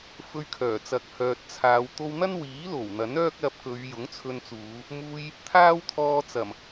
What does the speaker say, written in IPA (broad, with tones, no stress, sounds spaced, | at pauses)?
f ɵ˧ ɥ kʰ œː˨˩ t͡s ɐ˨˥ k̚ h œː˨ t̚ t͡sʰ aː˨˧ w t̪ o˧ w n̪ ɐ˥ n w iː˨˥ l o˨˩ w n̪ ɐ˨˥ n œː˥ k̚ l ɐ˧ p̚ k ɵ˨˧ ɥ j ʊ˨˥ ŋ t͡sʰ ɵ˧ n t͡s uː˨˧ | m uː˧ j | t̪ʰ aː˥ w t̪ʰ ɔː˧ t͡s ɐ˨˩ m